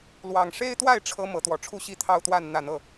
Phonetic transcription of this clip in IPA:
lwɑ˨˩ŋʂe˦ɪ̯t̪wa˥˨ɪ̯ ʈ͡ʂʰɤ˦ mɤ˨˦t̪wɔ˨˩ʈ͡ʂʰu˦ɕi˦ t̪ʰɑ˦ʊ̯t̪wa˥˨n n̪ä˥˨n̪ɤ˥˨

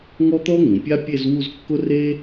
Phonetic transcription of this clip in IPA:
ŋɔ˥t̪ɔ˥ŋũ˩˧pʲa˥ pʲe˥˧zwu˥˧zkːʊ˥reː˥

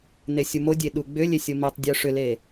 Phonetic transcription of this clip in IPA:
nesʲumodʲe ɗuɡ͡bʏlʲe sʲomitˤdʲo ʂʏle

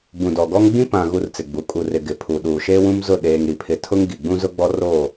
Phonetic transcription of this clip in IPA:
bũ˨dɔ˨ɡɔ˦ŋ ɡ͡bĩ˦pã˨ ɣu˦rt͡sɪ˨ɡ͡bu˨˦ kʼu˨rɪ˨ ɡɪ˨pʰu˨ ɗuː˨ʃeː˦wũ˦m zʊ˦˨ ɗeː˨ŋ ɾi˨pʰɪ˨tʰʊ˦ŋ ɡi˨ ɡ͡bũ˦zʊ˦ ɡ͡bɔ˦roː˦˨

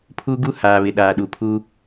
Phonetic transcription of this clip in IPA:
pʰu˦ɡu˦ haː˨βɪ˨ ɗaː˨ɗu˨pʰu˦

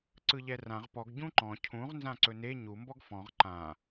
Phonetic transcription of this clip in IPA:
ǀɯʎɛrãʁ pɔɡ ɟũǃɔ̃ cʰũʁ nzãǀɵne ɲu mbɔɡfɔ̃ʁ ǃã

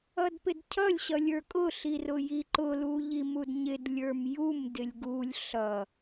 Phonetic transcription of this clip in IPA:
ʌdpɪdcʰʌlʲ ɕʌlʲə˞kʼʊ ɬirʊjiǃʊ luʎimudɲɪd lʲə˞mjum dɪlʲɡulʲ ɬʌ

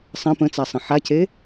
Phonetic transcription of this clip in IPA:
sˤə̃ pə̃t͡sasˤə̃ ħacʰe

